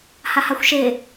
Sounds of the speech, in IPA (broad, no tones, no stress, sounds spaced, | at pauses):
h a h a xʷ ʃ e